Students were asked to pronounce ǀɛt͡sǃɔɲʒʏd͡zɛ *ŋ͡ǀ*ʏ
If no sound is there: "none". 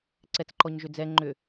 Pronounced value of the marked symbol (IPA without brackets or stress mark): ŋ͡ǃ